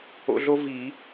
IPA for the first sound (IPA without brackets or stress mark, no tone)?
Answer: o̰